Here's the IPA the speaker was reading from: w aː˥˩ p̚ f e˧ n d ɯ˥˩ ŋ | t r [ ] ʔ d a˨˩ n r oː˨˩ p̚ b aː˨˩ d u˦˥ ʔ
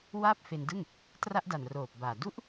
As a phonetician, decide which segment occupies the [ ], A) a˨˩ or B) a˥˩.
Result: B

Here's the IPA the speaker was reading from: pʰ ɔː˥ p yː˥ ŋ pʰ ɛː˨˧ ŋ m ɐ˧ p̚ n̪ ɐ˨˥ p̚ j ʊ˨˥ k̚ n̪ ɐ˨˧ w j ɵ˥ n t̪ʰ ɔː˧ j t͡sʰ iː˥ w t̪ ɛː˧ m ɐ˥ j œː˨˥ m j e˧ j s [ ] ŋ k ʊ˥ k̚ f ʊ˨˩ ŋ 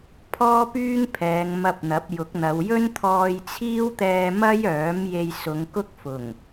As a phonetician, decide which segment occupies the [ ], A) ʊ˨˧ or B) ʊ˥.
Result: A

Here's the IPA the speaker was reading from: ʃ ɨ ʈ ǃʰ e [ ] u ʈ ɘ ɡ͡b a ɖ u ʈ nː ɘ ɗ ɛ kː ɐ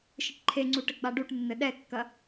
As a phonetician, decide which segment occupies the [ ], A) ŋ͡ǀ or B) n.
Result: A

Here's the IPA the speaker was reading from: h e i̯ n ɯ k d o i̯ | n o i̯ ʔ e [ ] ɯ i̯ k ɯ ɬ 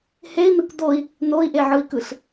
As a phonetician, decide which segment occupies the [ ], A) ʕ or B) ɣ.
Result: A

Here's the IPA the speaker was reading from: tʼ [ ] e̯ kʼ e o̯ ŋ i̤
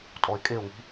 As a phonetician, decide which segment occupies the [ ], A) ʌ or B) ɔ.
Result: B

